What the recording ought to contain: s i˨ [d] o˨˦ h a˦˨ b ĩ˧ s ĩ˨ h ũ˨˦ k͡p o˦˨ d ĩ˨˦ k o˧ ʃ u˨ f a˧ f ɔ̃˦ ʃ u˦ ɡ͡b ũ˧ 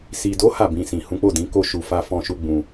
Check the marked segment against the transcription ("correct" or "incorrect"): correct